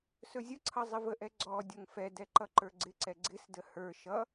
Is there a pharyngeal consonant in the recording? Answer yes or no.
no